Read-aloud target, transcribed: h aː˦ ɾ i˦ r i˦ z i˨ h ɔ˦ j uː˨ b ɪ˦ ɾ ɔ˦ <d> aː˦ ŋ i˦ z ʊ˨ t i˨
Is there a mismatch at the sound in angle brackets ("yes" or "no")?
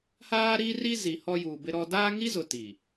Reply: no